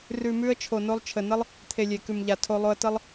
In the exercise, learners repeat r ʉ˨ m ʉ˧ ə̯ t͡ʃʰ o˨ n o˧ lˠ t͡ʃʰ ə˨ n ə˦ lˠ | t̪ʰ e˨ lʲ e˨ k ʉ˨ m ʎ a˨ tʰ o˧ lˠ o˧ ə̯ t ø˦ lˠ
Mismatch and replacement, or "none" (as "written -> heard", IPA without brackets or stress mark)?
ø˦ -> ə˦